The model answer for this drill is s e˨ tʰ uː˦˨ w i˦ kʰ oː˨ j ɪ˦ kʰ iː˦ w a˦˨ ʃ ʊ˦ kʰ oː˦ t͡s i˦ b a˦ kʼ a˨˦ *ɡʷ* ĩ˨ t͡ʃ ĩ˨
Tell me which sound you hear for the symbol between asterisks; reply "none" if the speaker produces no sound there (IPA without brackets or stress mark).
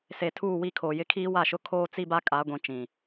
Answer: ɡʷ